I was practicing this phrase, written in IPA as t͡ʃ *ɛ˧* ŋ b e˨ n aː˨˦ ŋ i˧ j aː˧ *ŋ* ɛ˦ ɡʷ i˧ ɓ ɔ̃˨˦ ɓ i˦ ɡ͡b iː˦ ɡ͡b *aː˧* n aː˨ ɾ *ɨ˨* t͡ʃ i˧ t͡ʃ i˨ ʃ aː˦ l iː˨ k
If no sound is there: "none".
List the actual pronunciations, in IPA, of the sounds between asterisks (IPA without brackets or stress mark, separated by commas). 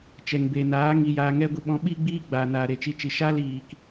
ɛ˨, ŋ, aː˨, e˨